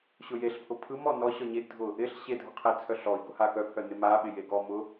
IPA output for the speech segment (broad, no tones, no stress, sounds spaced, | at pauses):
ɕ ʊ j e ɬ pʰ ʊ pʰ ɯ m ɔ n ɔ ɕ ɔ ɲ e ɡ dʱ ʊ | ɪ ɬ ɕ e dʱ ʊ qʰ e t͡sʰ œ ɬ ɔ i̯ ɡ ʊ h a k œ pʰ œ n ɪ m a ɓ ɪ j e ɡ ɔ m ʊ